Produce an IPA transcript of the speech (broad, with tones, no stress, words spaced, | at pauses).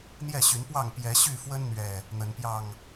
n̪jɛ˥˨ɕy˨˦npwɑ˥˨ŋ pjɛ˨˦ɕy˥˨fwə˦n n̪ɥɛ˥˨ | n̪ə˨˦npjɑ˥˨ŋ